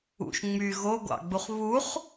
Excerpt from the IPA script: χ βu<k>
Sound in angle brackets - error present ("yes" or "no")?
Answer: yes